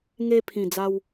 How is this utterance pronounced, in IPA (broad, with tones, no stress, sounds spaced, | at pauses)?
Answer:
ŋ e˦ pʰ ĩ˨˩ d͡z a˧ w